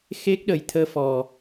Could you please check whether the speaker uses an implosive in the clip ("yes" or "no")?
yes